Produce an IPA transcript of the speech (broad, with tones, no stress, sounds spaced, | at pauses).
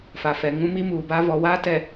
f a˨ f ɛ˨ ŋ ũ˦ m i˦ m uː˨ b a˦ v ɔ˨ w aː˦ t ɛ˨